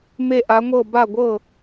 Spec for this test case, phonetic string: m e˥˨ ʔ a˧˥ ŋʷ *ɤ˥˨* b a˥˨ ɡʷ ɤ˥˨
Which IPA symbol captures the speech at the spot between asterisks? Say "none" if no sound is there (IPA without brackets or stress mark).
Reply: ɤ˥˨